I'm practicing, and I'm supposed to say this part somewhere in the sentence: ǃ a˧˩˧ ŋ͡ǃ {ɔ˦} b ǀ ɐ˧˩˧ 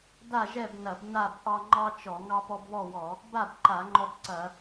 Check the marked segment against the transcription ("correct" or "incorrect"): correct